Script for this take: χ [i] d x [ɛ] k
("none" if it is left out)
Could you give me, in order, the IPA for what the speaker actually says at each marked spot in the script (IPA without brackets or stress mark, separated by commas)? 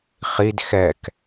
i, ɛ